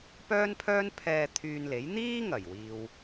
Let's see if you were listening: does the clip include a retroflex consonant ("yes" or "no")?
no